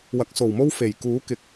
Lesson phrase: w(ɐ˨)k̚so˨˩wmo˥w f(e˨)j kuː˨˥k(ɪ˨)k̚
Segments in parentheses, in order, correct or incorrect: incorrect: ɐ˨˥, incorrect: e˨˩, correct

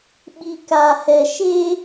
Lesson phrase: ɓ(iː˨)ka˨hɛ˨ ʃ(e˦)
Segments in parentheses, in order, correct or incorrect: incorrect: i˨, correct

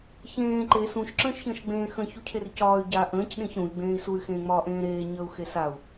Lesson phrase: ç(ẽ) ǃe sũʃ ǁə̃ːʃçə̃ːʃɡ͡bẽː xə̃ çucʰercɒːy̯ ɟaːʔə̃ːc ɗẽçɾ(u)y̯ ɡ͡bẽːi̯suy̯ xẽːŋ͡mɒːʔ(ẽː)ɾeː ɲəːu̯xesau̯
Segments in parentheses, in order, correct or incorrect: incorrect: ẽː, incorrect: ũ, correct

